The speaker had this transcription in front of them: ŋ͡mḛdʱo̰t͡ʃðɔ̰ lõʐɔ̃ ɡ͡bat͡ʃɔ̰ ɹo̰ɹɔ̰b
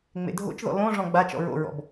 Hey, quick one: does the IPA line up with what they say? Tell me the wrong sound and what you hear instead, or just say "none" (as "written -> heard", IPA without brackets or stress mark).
none